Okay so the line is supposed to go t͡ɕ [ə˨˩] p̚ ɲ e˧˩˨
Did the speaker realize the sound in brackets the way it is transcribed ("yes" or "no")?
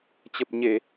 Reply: yes